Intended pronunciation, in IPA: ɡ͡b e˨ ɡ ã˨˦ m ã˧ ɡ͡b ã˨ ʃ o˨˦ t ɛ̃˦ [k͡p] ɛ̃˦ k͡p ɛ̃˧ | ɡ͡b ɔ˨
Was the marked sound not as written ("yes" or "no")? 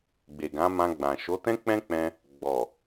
no